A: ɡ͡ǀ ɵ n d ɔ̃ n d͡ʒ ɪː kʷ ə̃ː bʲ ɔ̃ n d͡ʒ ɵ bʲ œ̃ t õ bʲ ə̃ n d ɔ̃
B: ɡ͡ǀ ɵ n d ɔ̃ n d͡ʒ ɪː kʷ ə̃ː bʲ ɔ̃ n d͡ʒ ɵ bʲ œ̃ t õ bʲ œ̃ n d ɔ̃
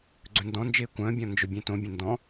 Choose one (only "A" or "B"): A